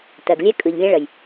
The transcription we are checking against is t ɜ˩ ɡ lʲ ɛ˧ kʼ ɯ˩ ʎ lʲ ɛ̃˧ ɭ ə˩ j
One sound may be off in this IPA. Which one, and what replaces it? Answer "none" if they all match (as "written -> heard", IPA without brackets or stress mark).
none